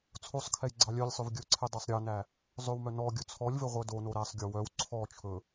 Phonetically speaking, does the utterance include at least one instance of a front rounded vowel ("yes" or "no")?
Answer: yes